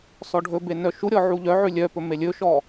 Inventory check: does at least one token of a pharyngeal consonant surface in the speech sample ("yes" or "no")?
yes